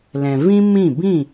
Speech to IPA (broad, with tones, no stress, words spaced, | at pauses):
lɛ̃˨vĩ˦ mĩ˦˨ bĩ˦˨